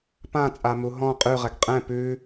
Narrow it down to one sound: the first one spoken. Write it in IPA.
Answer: p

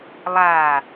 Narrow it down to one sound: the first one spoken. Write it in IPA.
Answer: lˠ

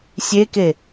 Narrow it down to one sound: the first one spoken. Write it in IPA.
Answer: sʲ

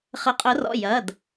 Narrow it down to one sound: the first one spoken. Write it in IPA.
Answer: χ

